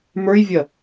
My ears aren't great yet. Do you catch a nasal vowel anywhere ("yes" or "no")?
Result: no